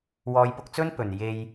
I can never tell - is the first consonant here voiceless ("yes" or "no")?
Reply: no